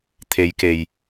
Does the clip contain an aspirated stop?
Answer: yes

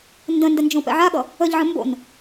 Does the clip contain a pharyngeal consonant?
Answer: yes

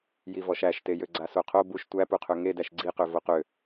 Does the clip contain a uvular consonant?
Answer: yes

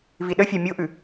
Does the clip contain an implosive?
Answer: yes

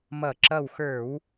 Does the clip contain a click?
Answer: yes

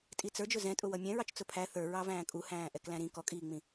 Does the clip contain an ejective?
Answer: yes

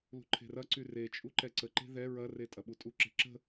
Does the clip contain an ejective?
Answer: yes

